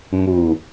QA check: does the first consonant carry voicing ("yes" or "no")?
yes